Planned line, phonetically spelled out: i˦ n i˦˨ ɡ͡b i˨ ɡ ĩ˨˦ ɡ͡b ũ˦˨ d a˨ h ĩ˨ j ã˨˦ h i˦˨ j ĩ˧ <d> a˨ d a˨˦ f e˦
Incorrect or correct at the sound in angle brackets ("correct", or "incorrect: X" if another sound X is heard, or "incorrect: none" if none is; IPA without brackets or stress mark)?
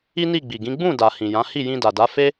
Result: correct